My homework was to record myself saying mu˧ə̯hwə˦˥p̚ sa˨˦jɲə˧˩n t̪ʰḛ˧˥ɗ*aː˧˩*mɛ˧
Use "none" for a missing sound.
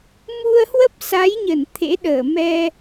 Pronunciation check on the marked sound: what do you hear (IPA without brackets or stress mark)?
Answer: əː˧˩